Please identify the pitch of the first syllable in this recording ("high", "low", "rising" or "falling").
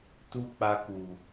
high